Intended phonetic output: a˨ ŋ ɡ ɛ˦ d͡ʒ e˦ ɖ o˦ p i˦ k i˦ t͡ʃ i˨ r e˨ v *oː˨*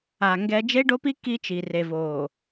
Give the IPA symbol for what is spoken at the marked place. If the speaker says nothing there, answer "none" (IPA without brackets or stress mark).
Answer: oː˨